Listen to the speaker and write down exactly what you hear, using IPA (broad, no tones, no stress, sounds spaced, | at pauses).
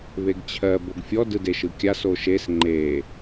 β e ɡ t͡ɕʰ ɜ b o ɡ fʲ ɔ d ɯ d e ʃ ɯ kʲ a s o ʃ e s ŋ͡ǃ e